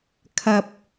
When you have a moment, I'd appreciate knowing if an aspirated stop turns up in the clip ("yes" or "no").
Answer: yes